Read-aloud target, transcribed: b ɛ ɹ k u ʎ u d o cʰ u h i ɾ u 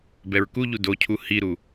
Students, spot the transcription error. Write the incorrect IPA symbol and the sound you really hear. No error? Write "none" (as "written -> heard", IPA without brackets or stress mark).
none